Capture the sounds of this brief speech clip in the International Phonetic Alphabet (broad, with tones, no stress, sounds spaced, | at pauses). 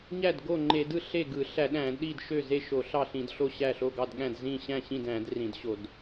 ɲ æ˥˩ d ɡ o˥˩ ŋ͡ǃ e˧˩˧ d ɯ˥˩ ɬ e˥˩ ɡ ɯ˧˩˧ ɬ æ˧˩˧ ɗ æ̃˧˩˧ d ɗ i˥˩ d ʃ ø˥˩ z e˥˩ ʃ o˧˩˧ ɬ ɑ˥˩ ɬ ĩ˧˩˧ d ɬ o˥˩ ɕ æ˥˩ ɬ o˥˩ ɡ ɑ˥˩ d ɠ æ̃˥˩ d z ĩ˥˩ ɕ æ̃˥˩ ɕ ĩ˥˩ d æ̃˧˩˧ d r ĩ˧˩˧ d ɕ o˧˩˧ d